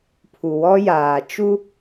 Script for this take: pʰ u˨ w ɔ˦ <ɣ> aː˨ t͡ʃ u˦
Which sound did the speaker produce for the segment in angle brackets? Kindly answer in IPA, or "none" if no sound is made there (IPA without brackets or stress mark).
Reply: j